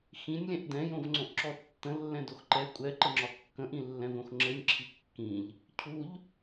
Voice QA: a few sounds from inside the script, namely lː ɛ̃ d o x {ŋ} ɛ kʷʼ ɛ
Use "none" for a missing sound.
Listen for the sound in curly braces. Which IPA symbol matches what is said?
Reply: ǃ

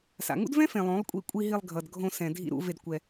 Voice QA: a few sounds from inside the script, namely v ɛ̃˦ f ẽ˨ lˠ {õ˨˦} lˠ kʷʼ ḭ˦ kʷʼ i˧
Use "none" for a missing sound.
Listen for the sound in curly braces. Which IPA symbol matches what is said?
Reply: õ˨˦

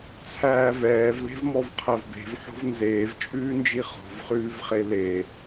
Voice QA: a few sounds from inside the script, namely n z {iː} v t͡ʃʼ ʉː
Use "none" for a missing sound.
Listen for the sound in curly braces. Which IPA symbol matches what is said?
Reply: eː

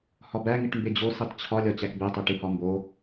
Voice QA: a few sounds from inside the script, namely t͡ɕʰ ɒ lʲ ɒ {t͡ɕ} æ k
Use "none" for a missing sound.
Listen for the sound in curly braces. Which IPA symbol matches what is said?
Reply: t͡ɕ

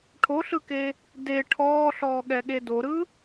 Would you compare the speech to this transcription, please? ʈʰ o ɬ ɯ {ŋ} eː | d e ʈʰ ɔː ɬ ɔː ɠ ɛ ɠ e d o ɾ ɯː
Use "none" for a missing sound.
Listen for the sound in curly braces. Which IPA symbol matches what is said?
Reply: k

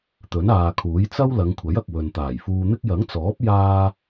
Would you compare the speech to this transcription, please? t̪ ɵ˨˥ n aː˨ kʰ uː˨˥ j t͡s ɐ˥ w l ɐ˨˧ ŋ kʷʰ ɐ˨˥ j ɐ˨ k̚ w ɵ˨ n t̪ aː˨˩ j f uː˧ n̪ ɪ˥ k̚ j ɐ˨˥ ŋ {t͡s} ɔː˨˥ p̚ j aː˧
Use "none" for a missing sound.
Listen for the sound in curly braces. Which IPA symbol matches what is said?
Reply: t͡s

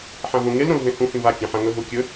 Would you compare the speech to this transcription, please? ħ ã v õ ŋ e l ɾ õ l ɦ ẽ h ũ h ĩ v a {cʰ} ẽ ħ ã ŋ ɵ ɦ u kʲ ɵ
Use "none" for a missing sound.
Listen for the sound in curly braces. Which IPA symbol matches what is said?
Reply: kʲ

